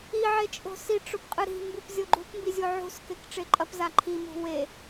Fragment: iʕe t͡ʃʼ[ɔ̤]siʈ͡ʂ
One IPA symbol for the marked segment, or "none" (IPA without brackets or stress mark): o̤